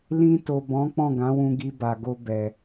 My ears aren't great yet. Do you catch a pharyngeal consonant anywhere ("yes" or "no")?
no